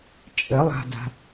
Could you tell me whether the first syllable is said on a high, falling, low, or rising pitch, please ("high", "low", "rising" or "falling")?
rising